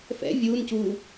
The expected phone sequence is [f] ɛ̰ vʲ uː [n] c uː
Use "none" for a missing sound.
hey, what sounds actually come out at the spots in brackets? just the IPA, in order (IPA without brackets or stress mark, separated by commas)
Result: f, n